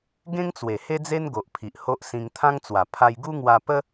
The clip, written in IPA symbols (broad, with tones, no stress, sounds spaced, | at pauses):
ɡ ẽ˦ ŋ t͡s w e˨˩ h e˦ d͡z e˦ n ɡ o˨ ʔ pʰ i˨ ʔ h o˦ ʔ s ĩ˧ ŋ t̪ʰ ã˦ ŋ t͡s w a˨˩ pʰ a˧ j ɡ u˦ ŋ w a˧ p ə˦